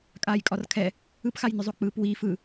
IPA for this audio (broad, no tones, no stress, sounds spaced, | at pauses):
kʼ aː j kʼ ɒ r kʰ ɛ | ɯ p x a j n ʏ zˤ o k͡p ɯː p w iː f ɯ